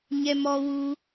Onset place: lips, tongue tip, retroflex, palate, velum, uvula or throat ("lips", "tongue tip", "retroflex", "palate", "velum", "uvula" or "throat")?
palate